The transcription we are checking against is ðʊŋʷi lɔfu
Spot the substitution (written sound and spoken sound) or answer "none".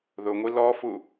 none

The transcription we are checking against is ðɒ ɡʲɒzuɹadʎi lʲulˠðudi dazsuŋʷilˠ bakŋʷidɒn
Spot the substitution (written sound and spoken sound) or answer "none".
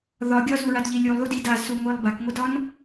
none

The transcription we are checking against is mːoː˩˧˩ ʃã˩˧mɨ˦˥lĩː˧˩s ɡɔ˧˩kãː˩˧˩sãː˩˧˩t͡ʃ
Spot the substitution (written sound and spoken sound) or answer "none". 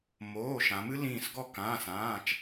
mː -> m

